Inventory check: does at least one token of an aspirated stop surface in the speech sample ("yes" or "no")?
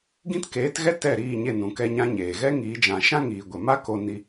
no